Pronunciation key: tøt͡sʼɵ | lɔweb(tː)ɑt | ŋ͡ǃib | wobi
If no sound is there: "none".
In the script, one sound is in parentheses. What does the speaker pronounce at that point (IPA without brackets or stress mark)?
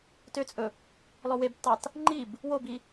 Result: tː